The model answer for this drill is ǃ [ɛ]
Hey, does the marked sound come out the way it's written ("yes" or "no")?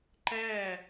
no